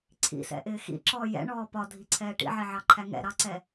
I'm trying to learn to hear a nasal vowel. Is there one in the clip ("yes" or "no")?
no